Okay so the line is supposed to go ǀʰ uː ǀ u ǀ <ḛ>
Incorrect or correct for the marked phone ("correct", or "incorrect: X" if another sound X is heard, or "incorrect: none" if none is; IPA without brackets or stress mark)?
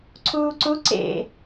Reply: correct